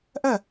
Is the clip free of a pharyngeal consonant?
yes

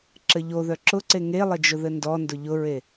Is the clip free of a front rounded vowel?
no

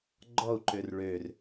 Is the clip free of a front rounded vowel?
no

